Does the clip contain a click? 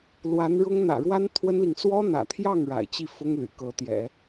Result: no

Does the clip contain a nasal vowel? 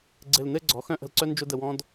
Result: yes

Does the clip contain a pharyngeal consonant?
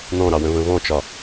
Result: no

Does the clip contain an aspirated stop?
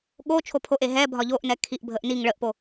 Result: yes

